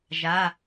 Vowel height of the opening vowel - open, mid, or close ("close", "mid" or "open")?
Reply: open